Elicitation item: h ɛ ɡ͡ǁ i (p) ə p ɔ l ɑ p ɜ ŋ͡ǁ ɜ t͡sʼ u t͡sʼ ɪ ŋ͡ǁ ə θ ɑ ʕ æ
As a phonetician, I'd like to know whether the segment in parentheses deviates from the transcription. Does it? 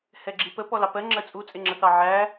no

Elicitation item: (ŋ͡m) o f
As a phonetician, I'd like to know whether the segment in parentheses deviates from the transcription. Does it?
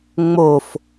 no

